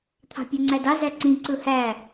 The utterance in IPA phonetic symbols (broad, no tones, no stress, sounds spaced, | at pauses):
t̪ʰ ɑ̤ pʲ ø ŋ͡ǀ æ d ɑ z æ ǀ ĩ ǀ ɯ h æ